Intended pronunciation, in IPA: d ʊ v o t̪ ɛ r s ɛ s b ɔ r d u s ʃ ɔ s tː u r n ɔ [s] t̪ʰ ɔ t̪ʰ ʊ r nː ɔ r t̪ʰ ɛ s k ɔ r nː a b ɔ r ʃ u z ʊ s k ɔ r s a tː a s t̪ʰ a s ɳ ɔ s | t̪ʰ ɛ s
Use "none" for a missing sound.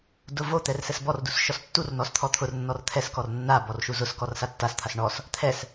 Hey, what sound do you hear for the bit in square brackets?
s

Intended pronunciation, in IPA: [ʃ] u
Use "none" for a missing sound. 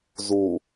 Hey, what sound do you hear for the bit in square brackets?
z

